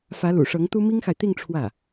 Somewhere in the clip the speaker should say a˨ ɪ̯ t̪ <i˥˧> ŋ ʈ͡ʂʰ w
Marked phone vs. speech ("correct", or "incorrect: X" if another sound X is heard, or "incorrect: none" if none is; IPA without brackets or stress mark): correct